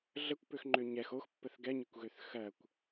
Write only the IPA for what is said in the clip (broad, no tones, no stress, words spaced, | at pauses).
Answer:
ɮəkʷpøxŋ͡ǃø ɲɛx oxpːəθ ɡɛɲɛkʷɣøθ xɜkʷ